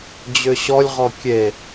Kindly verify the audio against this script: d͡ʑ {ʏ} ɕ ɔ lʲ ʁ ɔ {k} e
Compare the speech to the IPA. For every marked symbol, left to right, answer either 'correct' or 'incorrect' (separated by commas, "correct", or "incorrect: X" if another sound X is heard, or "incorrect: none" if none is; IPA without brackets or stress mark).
correct, incorrect: kʲ